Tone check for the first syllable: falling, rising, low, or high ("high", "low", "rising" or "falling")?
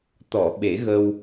low